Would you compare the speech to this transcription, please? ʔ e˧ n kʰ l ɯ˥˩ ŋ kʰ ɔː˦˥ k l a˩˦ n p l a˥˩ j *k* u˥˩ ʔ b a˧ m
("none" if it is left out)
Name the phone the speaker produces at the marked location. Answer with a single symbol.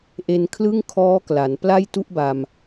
t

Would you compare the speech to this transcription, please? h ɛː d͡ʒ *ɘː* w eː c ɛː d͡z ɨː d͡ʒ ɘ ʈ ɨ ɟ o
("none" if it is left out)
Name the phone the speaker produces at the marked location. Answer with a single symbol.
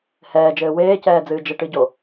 ɘː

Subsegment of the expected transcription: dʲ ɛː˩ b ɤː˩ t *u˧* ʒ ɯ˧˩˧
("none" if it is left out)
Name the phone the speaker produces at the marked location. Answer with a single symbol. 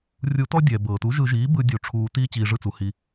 u˩˥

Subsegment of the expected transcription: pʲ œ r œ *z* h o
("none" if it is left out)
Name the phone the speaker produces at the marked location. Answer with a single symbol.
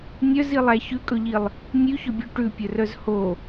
z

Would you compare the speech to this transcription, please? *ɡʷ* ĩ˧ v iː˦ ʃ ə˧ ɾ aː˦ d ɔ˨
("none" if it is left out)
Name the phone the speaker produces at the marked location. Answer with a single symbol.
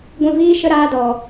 ɡʷ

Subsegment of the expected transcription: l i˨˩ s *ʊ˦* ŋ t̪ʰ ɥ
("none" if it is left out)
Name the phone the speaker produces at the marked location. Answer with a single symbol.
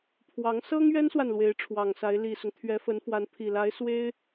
ʊ˦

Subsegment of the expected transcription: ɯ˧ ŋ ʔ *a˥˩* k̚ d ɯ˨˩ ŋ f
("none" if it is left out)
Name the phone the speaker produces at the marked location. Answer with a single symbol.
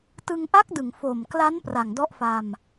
a˦˥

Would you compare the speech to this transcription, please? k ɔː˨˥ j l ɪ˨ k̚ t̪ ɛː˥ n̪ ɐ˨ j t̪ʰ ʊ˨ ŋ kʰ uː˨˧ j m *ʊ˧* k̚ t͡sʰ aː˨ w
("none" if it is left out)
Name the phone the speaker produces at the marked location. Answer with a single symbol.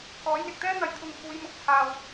ʊ˨˥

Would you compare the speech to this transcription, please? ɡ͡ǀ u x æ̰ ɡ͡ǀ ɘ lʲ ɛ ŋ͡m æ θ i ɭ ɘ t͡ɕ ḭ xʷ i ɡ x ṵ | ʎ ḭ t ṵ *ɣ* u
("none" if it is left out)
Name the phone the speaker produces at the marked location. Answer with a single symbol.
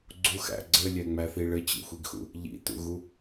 ɣ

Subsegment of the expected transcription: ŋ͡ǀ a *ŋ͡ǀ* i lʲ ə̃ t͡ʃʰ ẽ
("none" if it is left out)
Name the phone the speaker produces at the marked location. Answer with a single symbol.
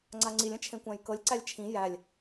ŋ͡ǀ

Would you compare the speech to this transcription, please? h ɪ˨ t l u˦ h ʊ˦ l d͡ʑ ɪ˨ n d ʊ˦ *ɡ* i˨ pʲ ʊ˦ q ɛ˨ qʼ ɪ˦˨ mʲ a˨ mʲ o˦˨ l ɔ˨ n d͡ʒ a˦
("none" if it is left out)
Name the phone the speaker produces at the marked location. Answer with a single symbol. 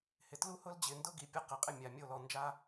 ɡ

